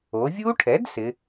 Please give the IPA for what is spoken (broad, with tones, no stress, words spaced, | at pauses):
o˩˧vʲu˦˥ʈʰɛ˩˥d sɪ˩˧